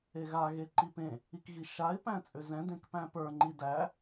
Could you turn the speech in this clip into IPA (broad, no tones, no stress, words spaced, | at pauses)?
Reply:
eɣa ɣeǃipẽ | ikɣiʃaɪ̯ pæ̃t͡sʼʏzɛ̃ dẽkpæ̃pə˞ ŋ͡ǃidæ